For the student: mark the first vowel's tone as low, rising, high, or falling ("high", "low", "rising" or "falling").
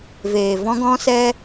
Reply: low